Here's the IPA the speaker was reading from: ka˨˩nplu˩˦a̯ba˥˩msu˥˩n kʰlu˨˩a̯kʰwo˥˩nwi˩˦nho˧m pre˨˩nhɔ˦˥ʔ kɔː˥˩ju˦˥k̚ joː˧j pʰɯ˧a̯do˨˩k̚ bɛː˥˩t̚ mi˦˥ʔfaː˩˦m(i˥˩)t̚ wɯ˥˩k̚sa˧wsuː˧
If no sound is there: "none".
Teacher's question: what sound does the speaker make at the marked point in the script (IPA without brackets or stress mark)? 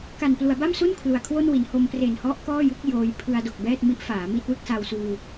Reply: i˥˩